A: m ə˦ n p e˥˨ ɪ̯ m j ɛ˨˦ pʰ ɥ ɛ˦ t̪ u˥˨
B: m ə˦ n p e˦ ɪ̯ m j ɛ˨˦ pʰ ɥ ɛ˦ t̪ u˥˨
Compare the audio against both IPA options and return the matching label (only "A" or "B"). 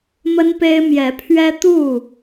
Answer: B